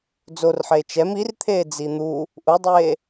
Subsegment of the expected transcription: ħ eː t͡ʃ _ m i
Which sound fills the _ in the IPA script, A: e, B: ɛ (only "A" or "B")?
B